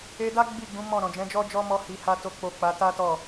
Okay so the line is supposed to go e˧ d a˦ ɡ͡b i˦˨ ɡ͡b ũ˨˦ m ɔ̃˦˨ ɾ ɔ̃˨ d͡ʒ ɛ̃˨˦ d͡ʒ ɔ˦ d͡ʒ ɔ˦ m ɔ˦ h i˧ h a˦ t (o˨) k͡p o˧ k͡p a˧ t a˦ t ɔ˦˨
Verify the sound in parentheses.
incorrect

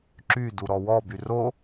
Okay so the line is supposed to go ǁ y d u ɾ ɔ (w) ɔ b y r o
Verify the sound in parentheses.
correct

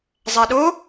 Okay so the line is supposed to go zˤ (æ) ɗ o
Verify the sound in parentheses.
correct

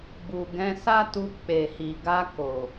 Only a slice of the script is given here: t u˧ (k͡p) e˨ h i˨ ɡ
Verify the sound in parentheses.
correct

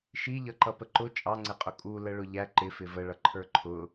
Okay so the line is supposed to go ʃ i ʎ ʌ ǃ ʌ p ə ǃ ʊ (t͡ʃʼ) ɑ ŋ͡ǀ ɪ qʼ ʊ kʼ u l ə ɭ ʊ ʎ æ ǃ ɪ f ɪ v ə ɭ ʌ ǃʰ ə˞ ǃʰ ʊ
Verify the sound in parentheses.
correct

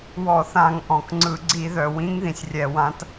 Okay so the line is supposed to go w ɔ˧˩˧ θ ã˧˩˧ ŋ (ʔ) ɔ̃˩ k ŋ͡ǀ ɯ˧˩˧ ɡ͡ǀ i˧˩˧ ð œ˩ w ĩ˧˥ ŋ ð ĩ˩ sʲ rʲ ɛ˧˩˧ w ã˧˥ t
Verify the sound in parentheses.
correct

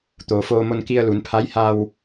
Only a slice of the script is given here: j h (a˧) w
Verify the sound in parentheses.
correct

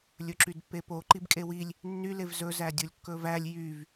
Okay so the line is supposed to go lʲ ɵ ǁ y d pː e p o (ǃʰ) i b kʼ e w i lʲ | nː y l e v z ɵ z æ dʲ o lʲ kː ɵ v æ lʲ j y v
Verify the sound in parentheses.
incorrect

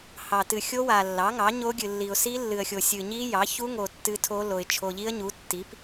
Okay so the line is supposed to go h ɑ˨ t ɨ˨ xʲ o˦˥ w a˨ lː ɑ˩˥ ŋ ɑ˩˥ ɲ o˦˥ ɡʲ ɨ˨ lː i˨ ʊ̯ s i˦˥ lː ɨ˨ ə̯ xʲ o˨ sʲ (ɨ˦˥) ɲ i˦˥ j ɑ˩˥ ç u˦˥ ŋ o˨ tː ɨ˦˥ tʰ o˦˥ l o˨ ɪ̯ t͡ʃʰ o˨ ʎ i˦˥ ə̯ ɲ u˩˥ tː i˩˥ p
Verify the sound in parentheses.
incorrect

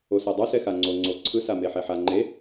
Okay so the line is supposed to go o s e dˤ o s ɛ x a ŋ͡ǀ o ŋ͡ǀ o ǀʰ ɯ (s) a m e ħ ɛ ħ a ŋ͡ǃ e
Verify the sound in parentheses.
correct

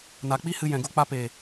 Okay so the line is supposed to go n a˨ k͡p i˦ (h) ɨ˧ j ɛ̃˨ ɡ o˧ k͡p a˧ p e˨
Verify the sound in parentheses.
correct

